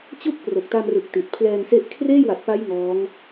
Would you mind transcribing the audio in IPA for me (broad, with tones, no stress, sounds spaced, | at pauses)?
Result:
t͡ɕ u˥˩ k̚ p r o˨˩ k̚ t a˧ m r ɯ˨˩ k̚ t i˨˩ t̚ pʰ l ɛː˧ ŋ s e˦˥ ʔ kʰ r eː˥˩ j w a˨˩ t̚ p a˦˥ j ŋ ɔː˦˥ ŋ